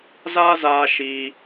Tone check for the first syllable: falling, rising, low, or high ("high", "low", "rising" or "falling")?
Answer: high